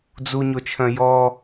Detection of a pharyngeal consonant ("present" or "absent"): absent